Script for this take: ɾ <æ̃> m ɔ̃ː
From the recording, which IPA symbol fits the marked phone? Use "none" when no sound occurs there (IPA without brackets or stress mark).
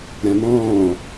æ̃